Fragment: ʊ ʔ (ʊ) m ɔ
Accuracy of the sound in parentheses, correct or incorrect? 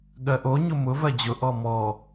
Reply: incorrect: ɔ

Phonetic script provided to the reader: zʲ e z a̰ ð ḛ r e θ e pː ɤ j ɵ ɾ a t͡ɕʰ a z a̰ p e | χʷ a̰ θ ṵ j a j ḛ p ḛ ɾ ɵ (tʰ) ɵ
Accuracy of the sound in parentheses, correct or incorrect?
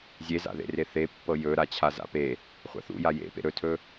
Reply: correct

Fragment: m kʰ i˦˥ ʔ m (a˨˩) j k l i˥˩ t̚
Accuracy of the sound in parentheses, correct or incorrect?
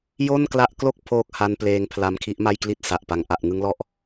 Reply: incorrect: a˥˩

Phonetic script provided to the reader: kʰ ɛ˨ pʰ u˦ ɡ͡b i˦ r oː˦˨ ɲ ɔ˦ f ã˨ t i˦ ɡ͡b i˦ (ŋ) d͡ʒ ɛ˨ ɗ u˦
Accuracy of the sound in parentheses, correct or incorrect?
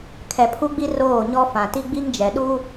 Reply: correct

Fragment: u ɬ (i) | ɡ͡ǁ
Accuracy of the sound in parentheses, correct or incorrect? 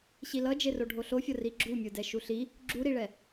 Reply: correct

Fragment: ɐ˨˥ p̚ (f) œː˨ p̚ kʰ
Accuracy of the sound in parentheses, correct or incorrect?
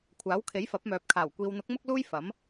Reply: incorrect: m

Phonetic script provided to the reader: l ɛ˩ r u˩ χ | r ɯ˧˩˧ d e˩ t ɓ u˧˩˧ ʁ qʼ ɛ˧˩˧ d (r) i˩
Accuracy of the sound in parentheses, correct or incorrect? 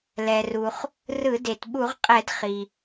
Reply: incorrect: χ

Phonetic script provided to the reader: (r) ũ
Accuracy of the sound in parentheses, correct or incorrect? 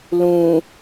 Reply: incorrect: l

